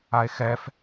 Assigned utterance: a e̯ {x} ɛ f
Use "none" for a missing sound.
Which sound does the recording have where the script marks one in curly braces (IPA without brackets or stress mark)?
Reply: x